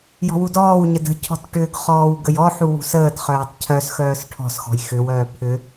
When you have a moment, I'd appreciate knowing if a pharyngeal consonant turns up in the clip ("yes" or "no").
yes